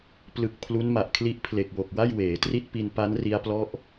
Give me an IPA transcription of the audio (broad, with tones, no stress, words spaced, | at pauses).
plɯ˨˩k̚ pʰlu˦˥nma˨˩ʔkʰli˦˥ʔ pʰle˨˩k̚wo˨˩k̚ wa˥˩jweː˩˦tri˥˩t̚pi˧n pa˦˥n ri˦˥a̯plɔ˥˩ʔ